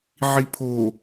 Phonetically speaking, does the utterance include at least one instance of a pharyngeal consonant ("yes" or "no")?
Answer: yes